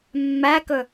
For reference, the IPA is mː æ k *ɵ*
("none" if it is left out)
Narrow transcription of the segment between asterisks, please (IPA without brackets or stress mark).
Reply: ɵ